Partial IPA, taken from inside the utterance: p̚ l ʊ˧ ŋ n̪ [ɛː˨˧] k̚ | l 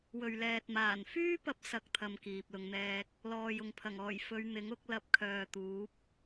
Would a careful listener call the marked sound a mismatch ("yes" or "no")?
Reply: yes